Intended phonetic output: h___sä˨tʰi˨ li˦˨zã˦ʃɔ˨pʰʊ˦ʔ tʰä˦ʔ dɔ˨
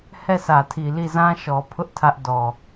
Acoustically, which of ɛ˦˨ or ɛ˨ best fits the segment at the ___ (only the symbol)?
ɛ˦˨